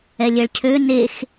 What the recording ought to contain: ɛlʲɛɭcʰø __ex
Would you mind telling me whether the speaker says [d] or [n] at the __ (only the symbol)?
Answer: n